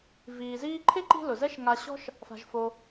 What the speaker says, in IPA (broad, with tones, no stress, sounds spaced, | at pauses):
v iː˨ z iː˥ ǃʰ ɪ˥ ǃ i̤˦ l ʊ˩ z ɛ˦ ʃ ŋ a˨ ɕ ɔ̤˦ ʃ | f a̤˨ ʒ f o˨